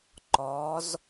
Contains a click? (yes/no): yes